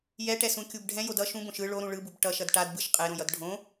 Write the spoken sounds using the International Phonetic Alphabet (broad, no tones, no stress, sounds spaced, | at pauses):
j ɛ ʈ ɛ s ũ kʲ u b ɖʱ ɛ̃ j o d ʌ ʃ ũ b õ ʃ ɯ ɭ o ɾ ũ ɭ ɯ b u b ʈ ʌ ʃ ʌ d ʈ a d b ɯ ʃ qʼ e ɾ õ j ʌ d ɖʱ õ